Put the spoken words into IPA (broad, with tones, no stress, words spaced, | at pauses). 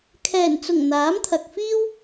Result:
kʰɛː˨˩nt͡sʊ˨˩ŋ n̪aː˨˥mt̪ʰɐ˨k̚fiː˥w